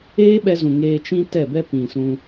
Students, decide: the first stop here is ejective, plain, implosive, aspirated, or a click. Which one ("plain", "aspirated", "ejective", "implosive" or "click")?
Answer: implosive